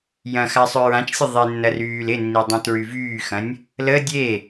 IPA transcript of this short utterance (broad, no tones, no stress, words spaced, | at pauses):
jɐ̃ xasˤøɹãt͡ʃsʲə ðˤenːɐ ryːlɪnːi dˤũtɹyvyːxɐ̃nʲ | lə dʲe